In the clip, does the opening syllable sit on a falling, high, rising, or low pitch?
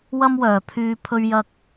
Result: high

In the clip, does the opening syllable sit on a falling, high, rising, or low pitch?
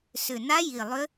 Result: low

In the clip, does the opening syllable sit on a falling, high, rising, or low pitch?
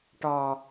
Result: low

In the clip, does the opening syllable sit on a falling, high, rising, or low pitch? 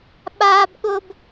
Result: high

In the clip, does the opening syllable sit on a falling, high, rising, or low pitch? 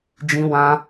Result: high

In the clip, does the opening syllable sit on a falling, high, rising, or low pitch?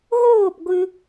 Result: falling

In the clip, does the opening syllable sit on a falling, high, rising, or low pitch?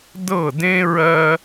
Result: falling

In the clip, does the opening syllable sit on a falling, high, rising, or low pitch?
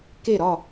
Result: falling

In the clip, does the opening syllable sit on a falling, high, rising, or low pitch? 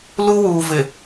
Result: high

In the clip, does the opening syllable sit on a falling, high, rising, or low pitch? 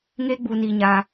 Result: high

